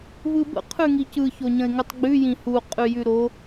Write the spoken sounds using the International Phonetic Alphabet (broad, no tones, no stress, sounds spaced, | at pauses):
v ɯ b ə̰ qʰ ʉ ŋ i c ɯ ç o ɲ ə̃ ɪ̯ ŋ ʉ tˤ ɡ͡b ʉ j ĩ h u qʼ ʉ j ʉ ɾ o